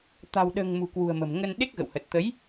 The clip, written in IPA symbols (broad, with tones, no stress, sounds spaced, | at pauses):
t̪ a̤˨˩ w ɗ ə̤ː˨˩ ŋ m ṳ˨˩ k w ṳ˨˩ ə̯ m ə̤˨˩ m ŋ ə˧ n ɗ e˦˥ k̚ ɣ ə̰˧˨ w h ə˨˩ t̚ t̪ ə˨˦ j